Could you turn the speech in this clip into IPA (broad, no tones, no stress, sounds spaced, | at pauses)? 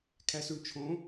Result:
kʰ æ s u ɳ t͡ʃʰ õ